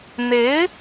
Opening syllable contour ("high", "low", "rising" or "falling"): rising